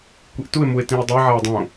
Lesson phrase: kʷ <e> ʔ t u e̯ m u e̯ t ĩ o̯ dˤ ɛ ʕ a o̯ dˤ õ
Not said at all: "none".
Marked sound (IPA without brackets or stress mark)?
i